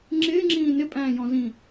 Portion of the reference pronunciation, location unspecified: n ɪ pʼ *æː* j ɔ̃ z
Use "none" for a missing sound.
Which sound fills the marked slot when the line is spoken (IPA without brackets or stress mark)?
æ̃ː